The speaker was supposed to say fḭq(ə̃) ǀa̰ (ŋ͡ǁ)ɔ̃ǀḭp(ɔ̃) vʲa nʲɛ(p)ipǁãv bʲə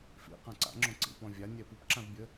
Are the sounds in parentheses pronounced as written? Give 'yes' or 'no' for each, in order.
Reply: no, yes, yes, yes

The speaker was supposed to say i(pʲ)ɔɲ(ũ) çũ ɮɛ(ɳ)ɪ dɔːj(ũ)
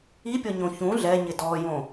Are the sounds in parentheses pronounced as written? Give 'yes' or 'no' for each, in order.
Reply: yes, no, no, no

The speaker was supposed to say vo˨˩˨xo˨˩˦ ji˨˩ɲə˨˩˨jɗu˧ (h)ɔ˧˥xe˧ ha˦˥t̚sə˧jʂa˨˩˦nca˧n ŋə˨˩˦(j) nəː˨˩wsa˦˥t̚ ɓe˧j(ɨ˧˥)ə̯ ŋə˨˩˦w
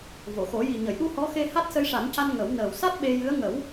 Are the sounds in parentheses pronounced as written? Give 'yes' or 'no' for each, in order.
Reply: yes, no, yes

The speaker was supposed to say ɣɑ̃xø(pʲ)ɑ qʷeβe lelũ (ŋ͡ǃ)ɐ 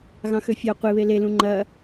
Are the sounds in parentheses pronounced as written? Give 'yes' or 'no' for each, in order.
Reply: no, yes

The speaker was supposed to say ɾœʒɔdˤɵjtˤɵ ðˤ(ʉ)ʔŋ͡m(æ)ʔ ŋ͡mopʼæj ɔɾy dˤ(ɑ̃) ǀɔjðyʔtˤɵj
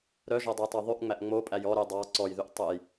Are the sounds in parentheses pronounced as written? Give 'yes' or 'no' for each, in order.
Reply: yes, yes, no

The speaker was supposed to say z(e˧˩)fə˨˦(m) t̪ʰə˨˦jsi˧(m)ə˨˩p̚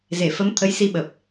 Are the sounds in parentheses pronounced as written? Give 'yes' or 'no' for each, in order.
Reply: yes, yes, no

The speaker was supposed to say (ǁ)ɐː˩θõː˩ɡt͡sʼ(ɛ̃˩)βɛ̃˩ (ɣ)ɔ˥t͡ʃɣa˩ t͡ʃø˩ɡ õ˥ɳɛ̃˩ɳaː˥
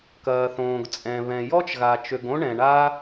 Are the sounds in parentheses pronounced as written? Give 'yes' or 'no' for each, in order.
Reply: no, yes, no

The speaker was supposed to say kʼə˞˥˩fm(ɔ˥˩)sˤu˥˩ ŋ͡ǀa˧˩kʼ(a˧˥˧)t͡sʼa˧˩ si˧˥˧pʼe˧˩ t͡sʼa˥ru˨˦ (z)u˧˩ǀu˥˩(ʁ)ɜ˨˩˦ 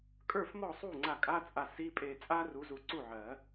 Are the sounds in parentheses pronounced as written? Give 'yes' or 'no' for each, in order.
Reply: yes, yes, yes, no

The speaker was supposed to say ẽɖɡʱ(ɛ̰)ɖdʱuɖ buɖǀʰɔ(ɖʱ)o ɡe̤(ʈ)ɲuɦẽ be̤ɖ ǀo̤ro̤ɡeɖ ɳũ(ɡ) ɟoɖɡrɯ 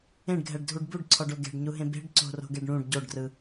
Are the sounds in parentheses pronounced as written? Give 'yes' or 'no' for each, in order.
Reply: no, no, no, no

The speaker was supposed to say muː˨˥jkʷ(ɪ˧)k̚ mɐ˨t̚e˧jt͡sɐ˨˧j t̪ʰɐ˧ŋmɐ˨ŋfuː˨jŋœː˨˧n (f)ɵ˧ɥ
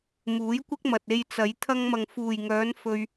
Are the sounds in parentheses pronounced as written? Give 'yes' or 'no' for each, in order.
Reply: no, yes

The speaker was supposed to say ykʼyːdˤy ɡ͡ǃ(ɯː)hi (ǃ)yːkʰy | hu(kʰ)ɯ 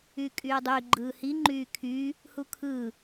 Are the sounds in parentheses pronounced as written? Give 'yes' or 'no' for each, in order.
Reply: yes, no, yes

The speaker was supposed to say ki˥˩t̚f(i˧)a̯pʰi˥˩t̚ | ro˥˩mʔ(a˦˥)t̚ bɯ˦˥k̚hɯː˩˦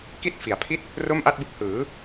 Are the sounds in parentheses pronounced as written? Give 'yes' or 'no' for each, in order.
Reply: no, no

